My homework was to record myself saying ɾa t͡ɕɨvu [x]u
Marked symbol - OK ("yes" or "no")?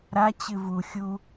no